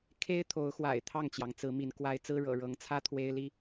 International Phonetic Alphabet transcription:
kʰ e˦ ɪ̯ t̪ʰ o˨˦ ʊ̯ x w a̰˨˩ ɪ̯ t̪ʰ ɑ˥˨ ŋ t͡ɕ j ɑ˩ ŋ t͡s ɹ̩˨˦ m i˨˦ n k w a˨˦ ɪ̯ t͡s ɹ̩˦ ɻ ɤ̰˨˩ ɻ ɤ˨˦ ŋ t͡sʰ ä˦ t̪ʰ w e˦ ɪ̯ l i˦

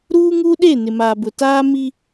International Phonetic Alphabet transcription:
ɾ uː˦ ŋ u˦ ɗ e˦˨ n ɪ˨ m aː˨ b ʊ˨ t aː˦ m i˦

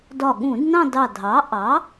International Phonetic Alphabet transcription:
d ɒ˧˩ ɠ ũ˧˩˧ d n ɑ̃˥˧ d ɑ˧˩ dʱ ɑ˩˥ ʔ ɑ˩˥

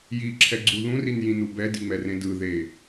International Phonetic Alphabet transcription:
j i ǁʰ ɛ ɡ͡ǀ u ð ũ r i n j ĩ n u b ɛ d i ŋ͡m ɛ r ẽ d ɯ ð e

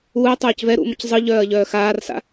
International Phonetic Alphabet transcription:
uː ɐ̯ tˤ œː c v ɛ ɾ ṵ m ə c zˤ ɯ ʎ œː ɐ̯ ʎ œː x aː r s a̰

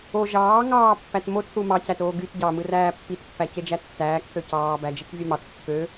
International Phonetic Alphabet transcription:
o ʒ ɑː ŋ ɑː pː æ t m o t θ u m ɑ c æ t oː ɡ y t ɟ ɑ m ɯ r æː pː i t pː æ c e d͡ʒ æ tː æː k θ ø c ɑː b æ d͡ʒ e k vʲ ø m ɑ t kː ø

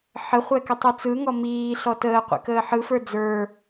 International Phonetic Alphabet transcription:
ħ ə χʷ ɛ k ə tˤ ɯ t͡s ɯ ŋ ɔ m iː ɬ ɔ t əː qʷ ɛ̰ k əː ħ ɯ f ə˞ d͡z ə˞

